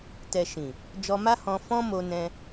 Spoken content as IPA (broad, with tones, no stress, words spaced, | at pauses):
tɛ˨ ʃĩ˨ | d͡ʒɔ˧ma˦hɔ̃˧ fɔ̃˦ mo˧nɛ̃˧